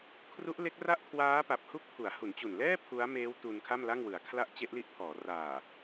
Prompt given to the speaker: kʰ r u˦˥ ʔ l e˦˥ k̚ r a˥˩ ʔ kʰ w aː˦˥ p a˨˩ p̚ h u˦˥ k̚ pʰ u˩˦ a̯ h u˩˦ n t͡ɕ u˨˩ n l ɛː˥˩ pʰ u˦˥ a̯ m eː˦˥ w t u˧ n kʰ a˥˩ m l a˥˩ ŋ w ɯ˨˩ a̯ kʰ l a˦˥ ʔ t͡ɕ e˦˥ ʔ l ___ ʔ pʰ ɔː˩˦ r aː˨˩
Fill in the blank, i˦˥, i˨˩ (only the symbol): i˦˥